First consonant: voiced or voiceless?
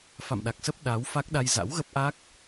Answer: voiceless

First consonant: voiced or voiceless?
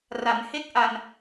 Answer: voiced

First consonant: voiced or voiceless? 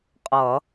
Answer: voiceless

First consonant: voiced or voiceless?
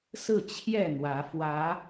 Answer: voiceless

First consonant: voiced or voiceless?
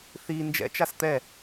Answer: voiceless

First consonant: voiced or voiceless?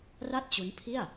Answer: voiced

